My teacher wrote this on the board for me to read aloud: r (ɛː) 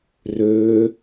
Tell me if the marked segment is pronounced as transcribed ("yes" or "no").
no